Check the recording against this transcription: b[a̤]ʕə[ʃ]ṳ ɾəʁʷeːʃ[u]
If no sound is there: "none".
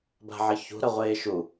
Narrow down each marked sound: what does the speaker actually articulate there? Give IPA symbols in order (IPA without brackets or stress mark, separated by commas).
a̤, ç, u